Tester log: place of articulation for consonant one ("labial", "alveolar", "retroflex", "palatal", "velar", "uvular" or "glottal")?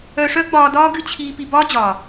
retroflex